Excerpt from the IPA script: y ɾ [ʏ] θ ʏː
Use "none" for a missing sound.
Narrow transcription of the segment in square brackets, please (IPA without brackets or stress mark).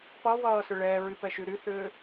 y